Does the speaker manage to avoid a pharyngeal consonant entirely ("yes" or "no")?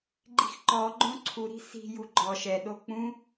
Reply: yes